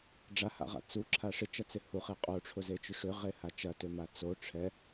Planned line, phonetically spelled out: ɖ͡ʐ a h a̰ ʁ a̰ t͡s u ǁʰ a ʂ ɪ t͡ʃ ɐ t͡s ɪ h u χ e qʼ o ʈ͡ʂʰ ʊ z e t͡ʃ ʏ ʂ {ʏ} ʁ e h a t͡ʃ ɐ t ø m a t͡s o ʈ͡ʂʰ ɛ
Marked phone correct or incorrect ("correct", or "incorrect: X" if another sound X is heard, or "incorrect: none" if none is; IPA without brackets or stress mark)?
correct